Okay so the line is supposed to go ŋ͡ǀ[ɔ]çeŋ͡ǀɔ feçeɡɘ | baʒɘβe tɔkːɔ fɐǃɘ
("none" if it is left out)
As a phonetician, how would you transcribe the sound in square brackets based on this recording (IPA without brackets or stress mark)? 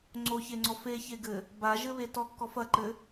o